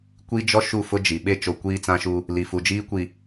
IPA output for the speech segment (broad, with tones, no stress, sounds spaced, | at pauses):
kʷ i˦ d͡ʒ ɔ˦ ʃ u˦˨ f ʊ˦ d͡ʒ i˨ ɓ e˦ t͡ʃ o˨ kʷ iː˦ t͡s ã˦ ʃ u˦ | l i˨ f u˨ d͡ʒ iː˦ kʷ i˨